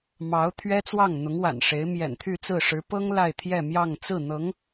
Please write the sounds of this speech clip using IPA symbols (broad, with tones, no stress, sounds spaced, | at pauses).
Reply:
m ɑ˧˥ ʊ̯ t̪ʰ ɥ ɛ˥ t͡s w ɑ˥˩ ŋ n̪ ʊ˧˥ ŋ w a̰˨˩ n ʂ e˧˥ ɪ̯ m j ɛ̰˨˩ n t̪ʰ y˥˧ t͡s ɹ̩˥˩ ʂ ɻ̩˧˥ p ɤ˥ ŋ l a˥˧ ɪ̯ t̪ʰ j ɛ˥˧ m j ɑ˥˧ ŋ t͡s ɹ̩˥˩ n̪ ɤ˧˥ ŋ